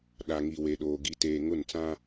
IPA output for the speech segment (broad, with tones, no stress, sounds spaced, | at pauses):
ɗ a˨ ŋ i˨ w e˨ ɗ oː˨ ɡ i˨ t eː˨ ŋ ʊ˦˨ n t͡s ã˦